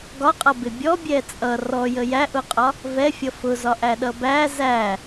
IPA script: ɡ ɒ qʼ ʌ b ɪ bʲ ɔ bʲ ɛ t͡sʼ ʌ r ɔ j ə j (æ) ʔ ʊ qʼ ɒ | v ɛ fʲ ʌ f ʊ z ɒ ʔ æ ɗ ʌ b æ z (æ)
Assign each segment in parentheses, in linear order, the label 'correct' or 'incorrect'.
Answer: correct, correct

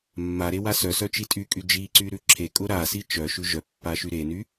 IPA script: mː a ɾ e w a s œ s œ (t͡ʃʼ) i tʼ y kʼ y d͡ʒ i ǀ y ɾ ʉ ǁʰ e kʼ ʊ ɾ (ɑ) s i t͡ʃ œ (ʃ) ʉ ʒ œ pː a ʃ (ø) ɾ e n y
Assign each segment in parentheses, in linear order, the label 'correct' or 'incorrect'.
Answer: incorrect, incorrect, correct, incorrect

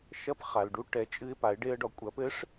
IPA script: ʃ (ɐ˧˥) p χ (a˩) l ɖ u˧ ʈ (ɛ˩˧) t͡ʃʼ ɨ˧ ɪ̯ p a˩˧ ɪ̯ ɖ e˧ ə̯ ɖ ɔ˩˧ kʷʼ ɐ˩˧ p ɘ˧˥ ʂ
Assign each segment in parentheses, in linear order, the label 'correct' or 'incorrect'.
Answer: correct, correct, correct

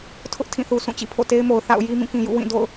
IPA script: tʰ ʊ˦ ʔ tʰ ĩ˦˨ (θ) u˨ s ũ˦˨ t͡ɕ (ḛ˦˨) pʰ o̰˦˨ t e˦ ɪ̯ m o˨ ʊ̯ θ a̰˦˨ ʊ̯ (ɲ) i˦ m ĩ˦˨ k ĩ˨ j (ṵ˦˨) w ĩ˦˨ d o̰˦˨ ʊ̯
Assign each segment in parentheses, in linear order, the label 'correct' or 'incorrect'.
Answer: correct, incorrect, incorrect, correct

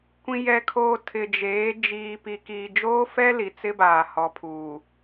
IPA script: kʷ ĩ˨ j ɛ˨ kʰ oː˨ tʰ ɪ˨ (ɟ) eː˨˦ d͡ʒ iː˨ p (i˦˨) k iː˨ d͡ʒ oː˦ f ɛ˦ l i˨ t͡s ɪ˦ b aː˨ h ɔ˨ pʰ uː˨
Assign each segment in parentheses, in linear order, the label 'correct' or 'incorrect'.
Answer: incorrect, incorrect

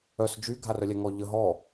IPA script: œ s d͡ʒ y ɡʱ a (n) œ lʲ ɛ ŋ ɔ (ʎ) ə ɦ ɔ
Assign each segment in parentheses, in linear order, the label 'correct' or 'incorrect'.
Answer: incorrect, correct

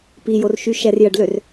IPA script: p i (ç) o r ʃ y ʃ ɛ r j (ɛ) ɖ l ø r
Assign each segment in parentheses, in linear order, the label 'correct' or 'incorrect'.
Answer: incorrect, incorrect

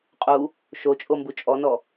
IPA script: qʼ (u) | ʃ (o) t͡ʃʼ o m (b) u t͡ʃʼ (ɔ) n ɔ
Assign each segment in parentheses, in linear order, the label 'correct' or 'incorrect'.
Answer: correct, correct, correct, correct

